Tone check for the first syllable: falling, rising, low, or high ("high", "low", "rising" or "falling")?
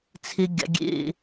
high